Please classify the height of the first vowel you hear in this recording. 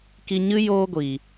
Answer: high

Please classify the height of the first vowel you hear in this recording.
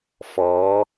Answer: mid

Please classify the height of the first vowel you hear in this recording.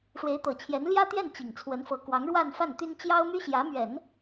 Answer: mid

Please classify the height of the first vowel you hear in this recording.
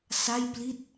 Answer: low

